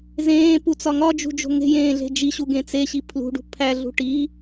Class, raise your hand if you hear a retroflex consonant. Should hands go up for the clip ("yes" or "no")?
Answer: yes